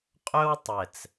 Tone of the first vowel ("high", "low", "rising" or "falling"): high